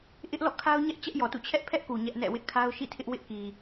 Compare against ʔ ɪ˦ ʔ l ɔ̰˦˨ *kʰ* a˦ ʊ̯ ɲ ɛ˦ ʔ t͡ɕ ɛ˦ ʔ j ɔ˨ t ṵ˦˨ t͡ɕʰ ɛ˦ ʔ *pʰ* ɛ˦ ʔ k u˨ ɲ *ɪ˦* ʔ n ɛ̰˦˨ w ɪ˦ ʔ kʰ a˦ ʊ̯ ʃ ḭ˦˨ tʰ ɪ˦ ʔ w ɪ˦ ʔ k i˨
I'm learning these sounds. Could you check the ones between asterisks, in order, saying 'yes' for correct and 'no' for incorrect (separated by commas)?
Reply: yes, yes, no